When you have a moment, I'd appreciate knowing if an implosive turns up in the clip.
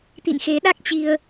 yes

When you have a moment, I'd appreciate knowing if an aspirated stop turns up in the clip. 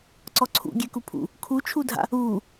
yes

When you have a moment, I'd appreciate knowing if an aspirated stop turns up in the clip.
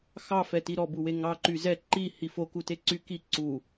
no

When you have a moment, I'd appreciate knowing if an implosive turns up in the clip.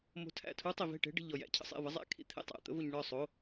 no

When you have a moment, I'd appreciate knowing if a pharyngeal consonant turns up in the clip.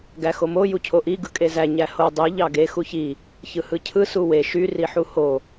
yes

